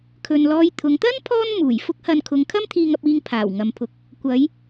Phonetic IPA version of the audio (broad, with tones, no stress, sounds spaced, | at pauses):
kʰ ɵ˧ n l ɔː˧ j t̪ʰ ʊ˨˧ ŋ t̪ ɐ˥ n pʰ ɔː˥ n m uː˨˩ j f ʊ˥ k̚ h ɐ˧ n kʰ ʊ˨˧ ŋ kʰ ɐ˥ m t̪ʰ iː˧ ŋ ɐ˧ p̚ iː˧ ŋ pʰ aː˨˩ w ŋ ɐ˨ m pʰ ʊ˨˥ k̚ | kʷ ɐ˨˧ j